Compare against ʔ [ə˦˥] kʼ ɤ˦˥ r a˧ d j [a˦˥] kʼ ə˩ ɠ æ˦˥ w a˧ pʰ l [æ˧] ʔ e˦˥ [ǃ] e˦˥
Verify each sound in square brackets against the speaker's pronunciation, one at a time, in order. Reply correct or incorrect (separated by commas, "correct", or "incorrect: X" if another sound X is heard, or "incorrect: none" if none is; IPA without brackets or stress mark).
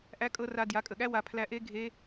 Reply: incorrect: æ˦˥, incorrect: a˩˥, correct, incorrect: ɡʱ